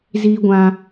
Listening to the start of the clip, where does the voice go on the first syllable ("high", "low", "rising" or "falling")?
high